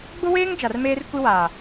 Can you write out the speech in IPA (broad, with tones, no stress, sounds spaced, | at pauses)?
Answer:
ɡ͡b ʊ˦ w eː˦ ŋ d͡ʒ a˨ r m eː˦ r kʷ i˦ w aː˨